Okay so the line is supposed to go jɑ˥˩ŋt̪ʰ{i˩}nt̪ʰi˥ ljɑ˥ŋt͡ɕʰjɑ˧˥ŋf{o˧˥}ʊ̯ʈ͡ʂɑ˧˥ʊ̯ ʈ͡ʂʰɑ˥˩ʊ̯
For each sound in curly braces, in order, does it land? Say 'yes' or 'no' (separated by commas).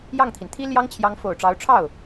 yes, no